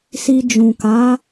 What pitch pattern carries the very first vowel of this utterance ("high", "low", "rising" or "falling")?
low